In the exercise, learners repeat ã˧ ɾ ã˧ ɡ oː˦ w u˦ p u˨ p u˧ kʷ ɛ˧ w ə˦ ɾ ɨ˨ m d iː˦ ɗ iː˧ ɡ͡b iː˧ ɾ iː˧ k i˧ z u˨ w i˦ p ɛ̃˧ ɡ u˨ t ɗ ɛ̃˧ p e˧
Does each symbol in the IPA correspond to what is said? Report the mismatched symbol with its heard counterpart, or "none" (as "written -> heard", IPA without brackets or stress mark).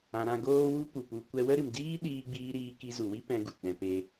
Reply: none